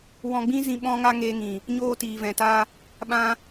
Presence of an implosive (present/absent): present